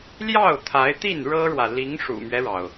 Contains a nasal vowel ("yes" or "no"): no